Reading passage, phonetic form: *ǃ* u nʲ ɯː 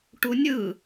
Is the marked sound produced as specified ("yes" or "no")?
no